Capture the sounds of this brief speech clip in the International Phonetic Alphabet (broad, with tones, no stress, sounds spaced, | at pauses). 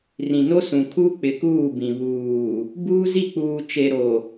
r ĩ˨ n o˦ s ũ˨ kʰ u˦ k͡p ɪ˨ k uː˦˨ b ĩ˨ β uː˨ | b uː˦ z i˦˨ k͡p uː˨ t͡ʃ e˨ ɾ o˨